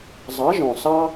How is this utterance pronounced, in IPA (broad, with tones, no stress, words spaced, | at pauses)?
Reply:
zˤɑ˨˥ ʒɔ̃˨˩ sɑ˦